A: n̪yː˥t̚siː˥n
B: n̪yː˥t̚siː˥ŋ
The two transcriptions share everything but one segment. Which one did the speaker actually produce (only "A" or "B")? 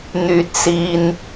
A